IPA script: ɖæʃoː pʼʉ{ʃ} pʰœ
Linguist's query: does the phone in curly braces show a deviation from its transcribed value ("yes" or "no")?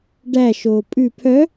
yes